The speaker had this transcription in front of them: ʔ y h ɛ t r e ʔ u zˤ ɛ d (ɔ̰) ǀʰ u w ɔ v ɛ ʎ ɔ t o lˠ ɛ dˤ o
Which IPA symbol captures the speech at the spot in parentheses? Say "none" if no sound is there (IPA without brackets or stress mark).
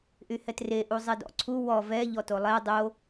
ɔ̰